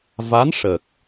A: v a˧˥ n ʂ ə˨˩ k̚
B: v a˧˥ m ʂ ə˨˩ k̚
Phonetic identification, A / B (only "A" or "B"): A